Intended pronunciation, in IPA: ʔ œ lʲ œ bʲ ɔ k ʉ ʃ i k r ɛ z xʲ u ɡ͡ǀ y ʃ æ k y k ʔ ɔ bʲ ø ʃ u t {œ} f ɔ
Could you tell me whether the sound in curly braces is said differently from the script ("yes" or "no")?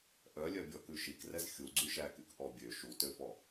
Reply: yes